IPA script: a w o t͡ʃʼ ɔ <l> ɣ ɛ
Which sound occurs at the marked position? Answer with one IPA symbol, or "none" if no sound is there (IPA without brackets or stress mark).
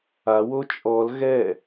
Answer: l